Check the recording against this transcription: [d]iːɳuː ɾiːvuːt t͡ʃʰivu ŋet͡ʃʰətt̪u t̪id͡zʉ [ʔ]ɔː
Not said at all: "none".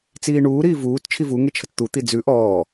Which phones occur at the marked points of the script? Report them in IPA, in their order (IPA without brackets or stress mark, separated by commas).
t͡s, ʔ